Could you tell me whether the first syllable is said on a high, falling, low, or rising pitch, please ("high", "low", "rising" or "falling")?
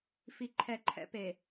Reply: low